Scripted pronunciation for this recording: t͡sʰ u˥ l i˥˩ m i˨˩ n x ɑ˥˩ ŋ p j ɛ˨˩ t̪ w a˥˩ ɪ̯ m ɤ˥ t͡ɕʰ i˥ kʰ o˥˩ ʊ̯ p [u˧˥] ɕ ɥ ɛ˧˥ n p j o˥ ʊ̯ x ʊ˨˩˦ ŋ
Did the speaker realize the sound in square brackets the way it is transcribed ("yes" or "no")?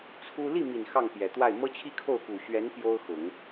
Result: no